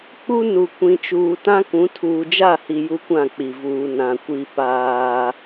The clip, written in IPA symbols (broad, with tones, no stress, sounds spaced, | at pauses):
k͡p u˦ n u˨ kʷ ĩ˨ t͡ʃ uː˨ t ã˦ k ũ˨˦ tʰ uː˨ d͡ʒ a˦˨ h i˨ j u˦ kʷ ã˦˨ k͡p i˨ v uː˨ n ã˨ kʷ i˨ p aː˦